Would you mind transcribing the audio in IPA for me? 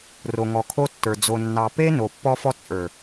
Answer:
r o˨ ŋ ɔ˨ kʰ o˦ tː ə˞˨ d͡z o˨ nː ɑ˨ p e˦ n o˨ pː ɔ˦ f ɔ˦ t͡sʼ ə˞˨

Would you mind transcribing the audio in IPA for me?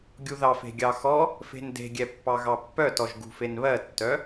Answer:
ɡʲ u ð ɑ f e̤ ɡʲ ɑ x ɔ | f e̤ n d e̤ ɡʲ ɛ pː ɑ ɣ ɑ pː œ t ɔ ʒ ɡ ṳ f e n β ɜ tː œ

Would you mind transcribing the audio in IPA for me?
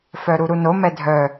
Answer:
f œ ɾ u ɾ u n o m ɛ dʱ œ

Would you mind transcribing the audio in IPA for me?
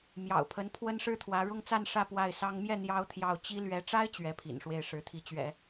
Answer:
m j ɑ̰˨˩ ʊ̯ pʰ ə˧˥ n pʰ w ə˥ n ʂ ɻ̩˥ t̪ʰ w ä˧˥ ɻ ʊ˥˧ ŋ t͡s a˥˧ n ʂ ä˥˧ p w a˥˩ ɪ̯ s ɑ˥ ŋ m j ɛ˥˩ n̪ j ɑ˥ ʊ̯ t̪ʰ j ɑ˥˩ ʊ̯ t͡ɕ i˥ l ɥ ɛ˧˥ ʈ͡ʂ a˥ ɪ̯ t͡ɕ ɥ ɛ˧˥ pʰ ḭ˨˩ n ʂ w e˥˩ ɪ̯ ʂ ɻ̩˧˥ t̪ʰ i˧˥ t͡ɕ ɥ ɛ̰˨˩˦

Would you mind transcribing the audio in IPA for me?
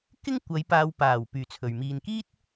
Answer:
k ɪ˥ ŋ kʷ ɐ˨˧ j p aː˧ w p aː˨˩ w p yː˨ t͡sʰ ɵ˨ ɥ m iː˨ n k iː˥ t̚

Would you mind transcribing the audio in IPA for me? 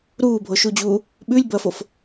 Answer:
ɾ uː bʱ o ʃ u d͡ʑ uː | ɓ ʉ lʲ b ɐː f o f

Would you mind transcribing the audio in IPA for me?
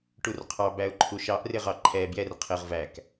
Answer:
ʈ u r qʰ ɑ b æ ʊ̯ ǃʰ u ʃ ɑ ʔ r ɪ ʁ ɑ ǃʰ ɛ b j ɛ r qʰ ɪ ʁ v æ k

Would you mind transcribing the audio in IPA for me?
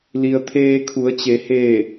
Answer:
l i˩ ə̯ t̪ʰ eː˧ kʰ u˩˧ ə̯ t͡ɕ e˩˧ h eː˧˩

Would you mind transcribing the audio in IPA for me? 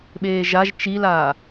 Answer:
ɓ eː ʒ a ʒ t͡ʃ i l aː

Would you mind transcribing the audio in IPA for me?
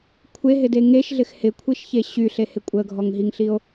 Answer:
kʷʰ e ɦ ɪ d e ŋ e ʃ ɮ ɪ x h ɪ kʷʰ i ʃ ç e ɕ y ɬ e h ɪ kʷʼ ə ɡʱ ɔ ŋ ɦ i ŋ ɬ i o̯

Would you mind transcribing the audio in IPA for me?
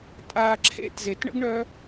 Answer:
tʼ a ǁʰ ḛ t z e t ɳ ə̰ ɡ ɳ œ

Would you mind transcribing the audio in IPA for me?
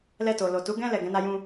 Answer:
l ɛ˧ t o˨ l o˨ t u˨˦ ɡ ɛ̃˦ l ɛ˦˨ ɡ ɛ̃˨˦ n a˦ j ũ˦

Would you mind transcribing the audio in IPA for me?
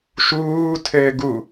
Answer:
ʃ uː tʰ ɘː ɡ u

